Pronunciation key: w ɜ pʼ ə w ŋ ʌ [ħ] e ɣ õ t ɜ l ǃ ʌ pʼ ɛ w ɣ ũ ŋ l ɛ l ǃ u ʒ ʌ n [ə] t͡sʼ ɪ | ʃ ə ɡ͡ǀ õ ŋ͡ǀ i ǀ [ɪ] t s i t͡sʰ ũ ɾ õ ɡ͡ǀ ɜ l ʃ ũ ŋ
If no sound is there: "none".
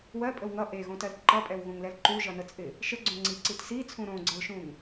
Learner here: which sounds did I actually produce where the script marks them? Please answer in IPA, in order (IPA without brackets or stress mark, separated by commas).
ʔ, ə, i